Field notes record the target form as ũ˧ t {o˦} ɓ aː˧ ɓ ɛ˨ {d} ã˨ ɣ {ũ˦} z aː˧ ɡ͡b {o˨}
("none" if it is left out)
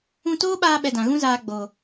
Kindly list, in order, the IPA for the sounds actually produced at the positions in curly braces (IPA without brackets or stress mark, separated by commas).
oː˦, d, ũ˦, o˨